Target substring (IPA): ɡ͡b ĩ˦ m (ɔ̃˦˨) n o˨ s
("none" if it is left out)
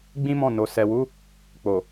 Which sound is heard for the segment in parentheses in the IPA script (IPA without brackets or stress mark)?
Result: ɔ̃˦˨